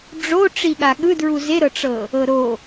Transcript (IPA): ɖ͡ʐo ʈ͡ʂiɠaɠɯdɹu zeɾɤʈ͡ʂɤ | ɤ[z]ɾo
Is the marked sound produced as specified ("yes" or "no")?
no